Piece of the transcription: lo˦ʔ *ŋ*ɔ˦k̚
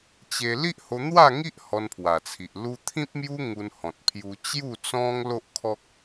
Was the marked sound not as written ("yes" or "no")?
yes